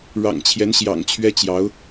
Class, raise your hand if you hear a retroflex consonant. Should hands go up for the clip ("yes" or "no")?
yes